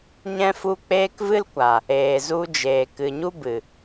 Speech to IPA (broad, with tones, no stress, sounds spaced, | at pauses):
ɲ ɛ̃˦ f u˦ k͡p eː˦ k v ɨ˦ l kʷ a˨ | eː˨ z u˧ d͡ʒ eː˨ k ɨ˨ ɲ u˦ b ɨ˨